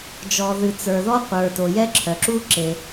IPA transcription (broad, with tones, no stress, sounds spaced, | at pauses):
d͡ʒ ɔ˧ ð ɨ˧ t͡s ə˞˧ ð ɔ˦ qʷ ə˞˨ t o˨ j ɛ˦ ǁʰ œ˨ ǁ u˦ ǁ e˧